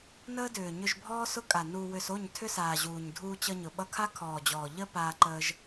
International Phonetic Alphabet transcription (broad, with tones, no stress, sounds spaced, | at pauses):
n əː˦ d ʏː˨ ɲ ʏ˧ ʒ bʱ ɔː˦ s ʊ˦ kʼ a˨ n u˧ w ʏ˧ s o˦˨ ɲ tʰ ʏ˦ s aː˨ ʑ uː˨ ɲ dʱ uː˧ t͡ɕ ʌ˧ ɲ ʊ˨ ɓ ʌ˧ kʰ a˦ kʰ ɔː˨ d͡ʑ ɔː˨ ʎ ə˦ p aː˧ ǃ əː˧ ʒ